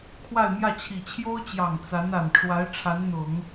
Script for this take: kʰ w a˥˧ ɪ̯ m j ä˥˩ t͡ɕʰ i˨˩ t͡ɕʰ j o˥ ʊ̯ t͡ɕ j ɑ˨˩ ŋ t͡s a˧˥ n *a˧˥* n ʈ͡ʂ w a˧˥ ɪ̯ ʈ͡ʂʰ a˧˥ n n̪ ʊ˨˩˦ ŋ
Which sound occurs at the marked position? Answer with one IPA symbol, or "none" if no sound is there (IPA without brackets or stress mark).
a˨˩